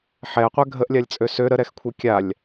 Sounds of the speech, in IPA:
ħ ɛ ə̯ qʷ ɛ ɡʱ ə ʔ lʲ a lʲ t͡sʼ ø s ø ɾ ə ɾ ɛ x kʷʰ ɛ kʲ a lʲ

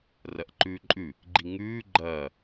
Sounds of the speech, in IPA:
r ɐ ʔ ǃ ʉː ǃʼ ʉ | ɡ͡ǃ i ŋ ʉː ɡ͡ǃ ɐː

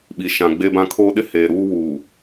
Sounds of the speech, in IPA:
ɓ i˨ ʃ ã˨ ɡ͡b e˦ b ã˦ kʰ oː˦ ɗ ɪ˦ h eː˨ ɾ uː˦ w uː˨

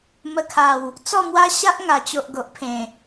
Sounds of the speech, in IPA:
m ə˧ kʰ a˨˩ w | t͡s ɔ˥˧ m w a˦ ɕ a˦ ʔ ŋ a˨˩ t͡ɕ o˨ ʔ ɡ o˨ ʔ pʰ ẽ˨˩

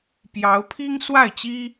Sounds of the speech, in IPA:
p j ɑ˧˥ ʊ̯ pʰ i˥ ŋ s w a˥˩ ɪ̯ t͡ɕ i˥

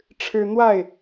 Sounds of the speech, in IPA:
ʈ͡ʂʰ ɻ̩˦ n̪ w a˥˨ ɪ̯

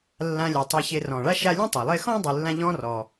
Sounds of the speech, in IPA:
lː ã˨ lʲ a˩ tˤ e˨ ç e˨ r ɔ̃˩ ɭ a˦ ʃ a˦ lʲ ẽ˥ tˤ a˩ lˠ e˦ x ɔ̃˥ dˤ ɨ˨ lː ã˦ ʎ ɔ̃˦ r ɔ˩

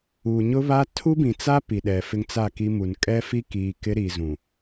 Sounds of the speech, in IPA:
uː˨ ɲ ʊ˦ β a˦ tʰ u˦ b ĩ˨ t͡s a˦ p i˨ ɗ ɛ˨ f ɪ˦ ŋ t͡s a˦˨ k i˦ m u˨ n kʼ ɛ˦ f i˦ k iː˨ k ɪ˦ ɾ iː˨ z ũ˨

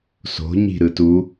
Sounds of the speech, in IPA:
s o̤ ɲ i̤ ɾ ɯ t u

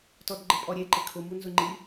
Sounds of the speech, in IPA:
t ɔ d ɡ͡ǃ ɪ pʼ ɔ ɾʲ e ǃ ɪ kʰ ʊ m u n z ʊ ŋ͡ǃ i

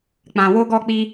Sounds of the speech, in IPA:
k͡p ã˨ w o˧ ɡ ɔ˧ k͡p i˧

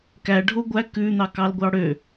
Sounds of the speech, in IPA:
k æ ɖʱ o ɡʷ æ k ʉ n̪ ɑ k ɑ l ɡʷ ɑ ɽ ø

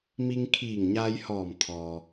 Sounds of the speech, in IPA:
m i˧ ŋ kʰ iː˧˩ ŋ ɲ aː˧ j h ɔː˧˩ m t̪ʰ ɔː˩

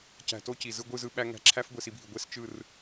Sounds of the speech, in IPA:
c æ̤˧ t o˦ c i˨ z ɯ˧ ɡʷ ɯ˦˨ z ɯ˧ ɓ æ˦ ŋ æ̤˧ ǁʰ æ˦ f ɡʷ e˧ s i˧ bʱ i˨ ɡʷ e˦ s t͡ʃ ɯ˦˨ r

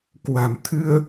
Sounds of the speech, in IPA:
k w a̤˨˩ m t̪ʰ ɨ˧ ə̯

